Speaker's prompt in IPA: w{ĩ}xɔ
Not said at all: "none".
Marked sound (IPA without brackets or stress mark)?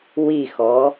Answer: i